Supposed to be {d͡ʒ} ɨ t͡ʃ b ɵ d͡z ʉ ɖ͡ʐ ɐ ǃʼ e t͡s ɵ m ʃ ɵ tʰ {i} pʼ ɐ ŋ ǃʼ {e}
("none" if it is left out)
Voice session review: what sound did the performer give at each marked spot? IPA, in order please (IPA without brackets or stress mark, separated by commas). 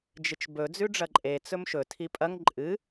d͡ʒ, i, ɨ